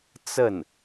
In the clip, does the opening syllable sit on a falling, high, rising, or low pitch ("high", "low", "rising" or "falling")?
falling